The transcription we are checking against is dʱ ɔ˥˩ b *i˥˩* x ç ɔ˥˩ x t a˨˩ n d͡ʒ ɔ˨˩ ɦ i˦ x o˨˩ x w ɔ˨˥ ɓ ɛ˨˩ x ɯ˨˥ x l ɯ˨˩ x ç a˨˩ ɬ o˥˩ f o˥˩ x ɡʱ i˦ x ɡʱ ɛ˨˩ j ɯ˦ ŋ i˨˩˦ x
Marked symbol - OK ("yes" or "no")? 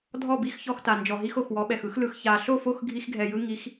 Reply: yes